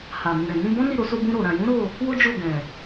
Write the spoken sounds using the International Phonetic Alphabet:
h a˨ m ũ˨ ɾ ɛ̃˨ n ĩ˧ b ɔ̃˦ n i˦˨ ɾ o˨˦ s o˧ b ũ˧ ɾ o˨ ɾ ã˨ j ũ˨˦ ɾ o˦˨ | w o˦ d͡ʒ o˦˨ ɡ ɛ̃˨

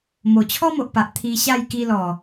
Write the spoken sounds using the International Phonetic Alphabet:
m o˨˩ t͡ɕʰ ɔ˦ m o˨ ʔ p a˨ ʔ t̪ʰ i˧ ɕ a˥˧ j k i˧ l ɔ˨˩

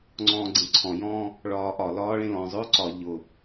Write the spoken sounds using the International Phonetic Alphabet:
ŋ͡ǀ ɔ̃ː ɡ͡ǀ ẽ ǀʰ ɔ̃ j ɔ̃ː | ɭ ɒː ʔ ɒ l ɒː ɭ ẽ l ɔ̃ zˤ ʊː ǀ ɒ ʎ ʊ

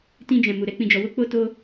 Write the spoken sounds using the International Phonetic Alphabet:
t ĩ˧ d͡ʒ ɛ̃˨ m u˨ ɾ ɛ˨˦ k͡p ĩ˧ d͡ʒ ɔ˧ w o˦ k͡p o˦ t o˦

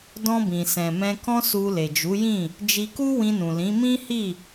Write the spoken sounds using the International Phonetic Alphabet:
d ɔ̃˧ b ĩ˨ s ɛ̃˨ m ɛ̃˧ k ɔ̃˦ s u˧ l e˨ d͡ʒ u˨˦ j ĩ˦˨ | d͡ʒ i˧ k u˦ w ĩ˧ n ũ˨ l ĩ˨˦ m ĩ˦ h i˦˨

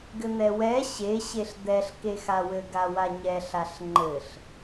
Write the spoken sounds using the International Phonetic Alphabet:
ɡ ɘ n̪ ɛ w ɛ ɕ e ɕ e ɬ d̪ ɛ ɬ k e x a w ɘ ɡ a w a ɲ ɛ ɬ a ɬ ŋ͡ǃ ɘ ɬ

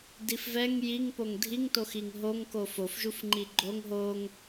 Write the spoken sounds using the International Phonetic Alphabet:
d i f v ɛ ŋ j i ŋ p o ŋ dʱ i ŋ t o x i ŋ ɦ o ŋ k o f o f ʒ u f ŋ͡ǃ i ɡ͡ǃ o ŋ ɦ o ŋ

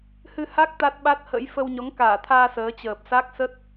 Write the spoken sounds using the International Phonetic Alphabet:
h ɨ˧ h a˦˥ k̚ t̪ a˦˥ t̚ ɓ a˦˥ t̚ h ə̰˧˥ j f ə˧ w ɲ ɔ˨˦ ŋ k aː˧˩ t̪ʰ aː˧ s əː˨˦ t͡ɕ əː˨˩ p̚ s a˦˥ k̚ s ə˦˥ t̚

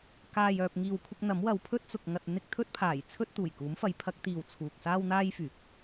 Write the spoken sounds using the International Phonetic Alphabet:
k aː˨ j œː˨ p̚ ŋ iː˨ w kʷʰ ɪ˧ k̚ n̪ ɐ˨˥ m w ɐ˨˧ w pʰ ɵ˥ t̚ t͡s ʊ˧ k̚ ŋ ɐ˧ t̚ n̪ ɪ˧ k̚ t̪ʰ ɵ˧ t̚ pʰ aː˨˩ j t͡sʰ ɵ˥ t̚ t̪ uː˨˩ j k uː˨˥ m f ɐ˨˥ j pʰ ɐ˨˥ k̚ t̪ iː˨ w t͡sʰ uː˨ k̚ s aː˥ w n̪ aː˥ j f yː˨˥ k̚

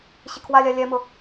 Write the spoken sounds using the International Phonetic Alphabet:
ɕ i kʰ w a lʲ a lʲ ɛ m ʊ

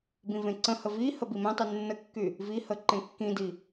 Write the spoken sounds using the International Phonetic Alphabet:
b ĩ v ẽ ǀ ə̃ h ə v i h ə b i m ẽ tˤ y nː ə kː y | v i h ə ǃ ẽ kː ĩ d i

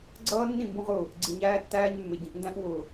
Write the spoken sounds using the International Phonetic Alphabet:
ɡ͡ǀ ʌː˦ nː ĩ˦˨ m b ũ˦ ʁ ʊː˦˨ | ɡ͡ǀ i˨ ɲ æː˦ tː æː˦ ɲ mː ɪ˨ ɟ ĩ˨ ʔ n d æ̃˦ ʔ w ʊː˨

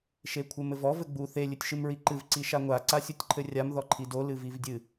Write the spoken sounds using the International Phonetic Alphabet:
ʃ e kʷʰ ɘ m ɘ v ɔ v ɘ ɡ͡b u θ e lʲ ɨ tʲ ʃ ɨ m ɹ i ǃ ɨ v ǀ i ʃ a ŋʷ a ǀ a sʲ u tʲ ǃʰ ɘ rʲ a m ð ɔ ǃʰ i d o l ɨ v i v dʲ ɨ

